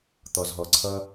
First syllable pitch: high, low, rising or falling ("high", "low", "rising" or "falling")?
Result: low